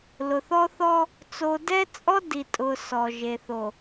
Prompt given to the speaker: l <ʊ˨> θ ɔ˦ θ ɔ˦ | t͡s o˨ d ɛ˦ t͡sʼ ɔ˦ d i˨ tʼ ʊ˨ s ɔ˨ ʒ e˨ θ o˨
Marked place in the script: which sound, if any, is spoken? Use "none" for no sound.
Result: ʊ˨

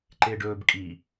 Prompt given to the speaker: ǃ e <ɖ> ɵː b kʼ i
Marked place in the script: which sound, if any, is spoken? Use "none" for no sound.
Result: ɖ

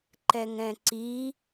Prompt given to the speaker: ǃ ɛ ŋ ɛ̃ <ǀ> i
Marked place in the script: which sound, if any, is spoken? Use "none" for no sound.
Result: ǀ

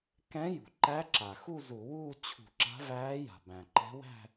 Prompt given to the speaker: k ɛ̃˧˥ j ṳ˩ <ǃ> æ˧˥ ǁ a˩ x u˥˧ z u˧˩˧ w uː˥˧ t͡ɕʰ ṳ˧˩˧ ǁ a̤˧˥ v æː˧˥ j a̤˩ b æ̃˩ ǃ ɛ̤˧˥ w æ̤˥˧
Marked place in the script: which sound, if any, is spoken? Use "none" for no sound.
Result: ǃ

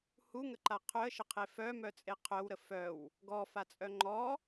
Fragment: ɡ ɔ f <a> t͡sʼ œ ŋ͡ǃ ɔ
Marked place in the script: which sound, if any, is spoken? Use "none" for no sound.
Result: a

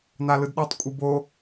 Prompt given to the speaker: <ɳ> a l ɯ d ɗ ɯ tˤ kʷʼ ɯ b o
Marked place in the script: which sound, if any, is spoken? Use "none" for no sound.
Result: n̪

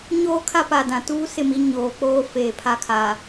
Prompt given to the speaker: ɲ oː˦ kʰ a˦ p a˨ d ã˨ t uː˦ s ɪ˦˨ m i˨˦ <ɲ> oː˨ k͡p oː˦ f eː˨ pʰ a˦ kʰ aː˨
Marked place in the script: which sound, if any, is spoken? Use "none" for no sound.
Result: ɲ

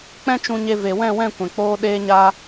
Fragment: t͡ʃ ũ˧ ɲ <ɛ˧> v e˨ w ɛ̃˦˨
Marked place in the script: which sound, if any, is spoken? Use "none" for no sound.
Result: e˧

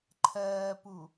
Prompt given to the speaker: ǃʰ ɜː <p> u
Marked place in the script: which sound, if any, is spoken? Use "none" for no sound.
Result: p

